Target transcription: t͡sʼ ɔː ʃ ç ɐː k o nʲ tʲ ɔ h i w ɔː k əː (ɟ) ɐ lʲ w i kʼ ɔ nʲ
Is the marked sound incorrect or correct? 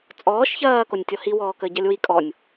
correct